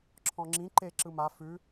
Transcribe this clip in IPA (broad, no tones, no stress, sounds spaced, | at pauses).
ǁʰ ɔ̃ ŋ͡ǁ ĩ ǃ e ǁ ɯ m a f ʉ